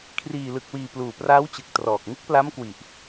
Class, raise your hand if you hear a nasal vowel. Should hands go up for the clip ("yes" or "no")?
no